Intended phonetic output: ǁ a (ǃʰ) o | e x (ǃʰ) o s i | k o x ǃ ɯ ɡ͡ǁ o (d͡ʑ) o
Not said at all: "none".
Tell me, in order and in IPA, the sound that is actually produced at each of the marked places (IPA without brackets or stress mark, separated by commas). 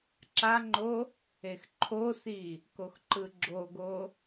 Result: ŋ͡ǃ, ǃʰ, ɡ